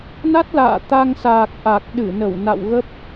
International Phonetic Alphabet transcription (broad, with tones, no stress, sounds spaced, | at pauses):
n a˦˥ t̚ l a̰ː˧˨ t̪ a˧ ŋ s aː˨˩ k̚ ʔ a˨˩ k̚ ɗ ɨ˧˩ n ə˧˩ w n a̰˧˨ w ɣ ə˦˥ p̚